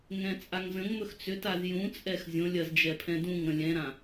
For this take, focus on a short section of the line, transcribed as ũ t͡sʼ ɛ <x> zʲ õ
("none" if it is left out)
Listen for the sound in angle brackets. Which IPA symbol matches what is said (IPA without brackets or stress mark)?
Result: x